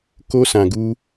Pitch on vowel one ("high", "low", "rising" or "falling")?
high